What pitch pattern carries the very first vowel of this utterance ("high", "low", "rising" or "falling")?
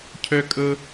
high